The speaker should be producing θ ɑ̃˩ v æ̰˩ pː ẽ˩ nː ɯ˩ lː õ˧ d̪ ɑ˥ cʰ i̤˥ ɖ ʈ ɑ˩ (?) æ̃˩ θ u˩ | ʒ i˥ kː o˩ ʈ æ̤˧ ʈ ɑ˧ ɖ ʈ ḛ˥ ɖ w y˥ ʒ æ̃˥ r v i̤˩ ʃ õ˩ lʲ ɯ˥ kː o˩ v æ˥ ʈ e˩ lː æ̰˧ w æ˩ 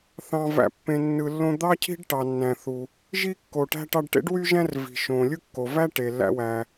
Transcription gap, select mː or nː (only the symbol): nː